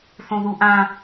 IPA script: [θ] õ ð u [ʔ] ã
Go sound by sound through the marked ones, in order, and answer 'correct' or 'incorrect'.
correct, correct

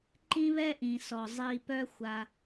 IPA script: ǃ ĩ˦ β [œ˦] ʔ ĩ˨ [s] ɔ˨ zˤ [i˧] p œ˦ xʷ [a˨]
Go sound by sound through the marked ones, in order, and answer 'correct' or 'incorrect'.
incorrect: ɛ˦, correct, correct, incorrect: a˧

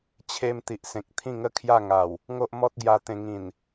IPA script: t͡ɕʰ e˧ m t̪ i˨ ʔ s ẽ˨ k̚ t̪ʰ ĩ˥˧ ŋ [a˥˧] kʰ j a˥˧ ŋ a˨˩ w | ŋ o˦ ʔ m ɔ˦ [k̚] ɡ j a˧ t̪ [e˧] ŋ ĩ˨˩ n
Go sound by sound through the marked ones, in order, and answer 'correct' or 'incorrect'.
incorrect: ə˥˧, incorrect: t̚, incorrect: ẽ˧

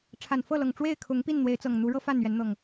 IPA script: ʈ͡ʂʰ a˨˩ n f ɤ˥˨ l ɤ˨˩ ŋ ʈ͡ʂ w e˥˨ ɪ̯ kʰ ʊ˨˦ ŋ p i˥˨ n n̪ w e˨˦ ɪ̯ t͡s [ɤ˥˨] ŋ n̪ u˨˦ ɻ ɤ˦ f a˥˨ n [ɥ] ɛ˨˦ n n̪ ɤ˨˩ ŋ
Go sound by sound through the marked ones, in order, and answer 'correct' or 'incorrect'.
incorrect: ɤ˨˩, correct

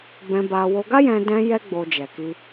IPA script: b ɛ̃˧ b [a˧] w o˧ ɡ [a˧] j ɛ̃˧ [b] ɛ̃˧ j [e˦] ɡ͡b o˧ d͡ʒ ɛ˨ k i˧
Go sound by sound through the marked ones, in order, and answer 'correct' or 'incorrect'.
correct, incorrect: a˦, incorrect: d, incorrect: ɛ˦

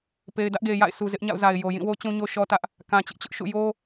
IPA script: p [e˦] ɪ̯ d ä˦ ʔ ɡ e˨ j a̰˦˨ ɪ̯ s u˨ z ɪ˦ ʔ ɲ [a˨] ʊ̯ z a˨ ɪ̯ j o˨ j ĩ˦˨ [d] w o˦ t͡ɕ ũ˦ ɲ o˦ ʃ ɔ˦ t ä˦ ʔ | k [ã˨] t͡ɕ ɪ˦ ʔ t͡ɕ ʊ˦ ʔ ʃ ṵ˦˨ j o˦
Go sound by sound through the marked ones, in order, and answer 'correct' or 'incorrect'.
incorrect: e˨, incorrect: a̰˦˨, incorrect: none, correct

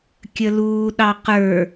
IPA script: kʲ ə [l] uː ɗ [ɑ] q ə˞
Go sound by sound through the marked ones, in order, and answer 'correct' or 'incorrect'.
correct, correct

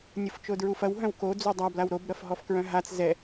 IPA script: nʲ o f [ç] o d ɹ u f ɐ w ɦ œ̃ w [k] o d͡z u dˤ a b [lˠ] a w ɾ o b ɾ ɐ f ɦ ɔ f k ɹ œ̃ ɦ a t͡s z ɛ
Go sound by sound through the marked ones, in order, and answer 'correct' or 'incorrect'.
incorrect: t͡ʃ, correct, incorrect: l

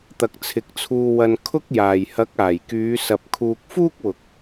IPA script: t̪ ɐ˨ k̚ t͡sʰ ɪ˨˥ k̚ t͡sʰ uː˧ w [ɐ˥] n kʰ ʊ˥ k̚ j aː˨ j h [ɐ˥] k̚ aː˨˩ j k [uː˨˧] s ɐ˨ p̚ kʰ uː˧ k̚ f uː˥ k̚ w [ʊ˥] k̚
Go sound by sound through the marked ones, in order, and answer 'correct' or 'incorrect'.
incorrect: ɐ˧, incorrect: ɐ˨˥, incorrect: yː˨˧, incorrect: ʊ˨

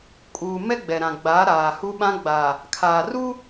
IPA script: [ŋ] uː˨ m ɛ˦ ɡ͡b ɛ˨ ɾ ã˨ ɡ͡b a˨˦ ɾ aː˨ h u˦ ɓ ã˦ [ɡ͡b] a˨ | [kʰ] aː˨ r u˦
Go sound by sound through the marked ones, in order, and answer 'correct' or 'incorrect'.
incorrect: kʼ, correct, correct

